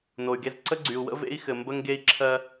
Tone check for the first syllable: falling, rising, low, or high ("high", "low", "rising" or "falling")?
low